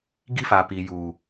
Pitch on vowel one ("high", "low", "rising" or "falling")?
high